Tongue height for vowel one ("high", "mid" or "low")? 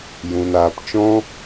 high